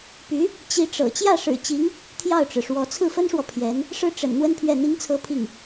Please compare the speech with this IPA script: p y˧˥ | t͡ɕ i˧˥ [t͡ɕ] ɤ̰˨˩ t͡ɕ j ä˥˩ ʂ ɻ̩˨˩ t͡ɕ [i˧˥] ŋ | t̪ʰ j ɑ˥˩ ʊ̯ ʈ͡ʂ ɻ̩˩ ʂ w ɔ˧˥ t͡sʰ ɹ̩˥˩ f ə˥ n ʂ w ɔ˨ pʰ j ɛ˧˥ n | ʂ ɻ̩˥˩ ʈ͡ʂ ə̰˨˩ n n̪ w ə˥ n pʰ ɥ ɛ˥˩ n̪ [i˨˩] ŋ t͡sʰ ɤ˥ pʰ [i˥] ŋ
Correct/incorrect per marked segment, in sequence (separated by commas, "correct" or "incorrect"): incorrect, correct, incorrect, incorrect